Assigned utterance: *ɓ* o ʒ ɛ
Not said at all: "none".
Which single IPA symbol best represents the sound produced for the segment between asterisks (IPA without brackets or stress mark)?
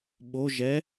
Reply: ɓ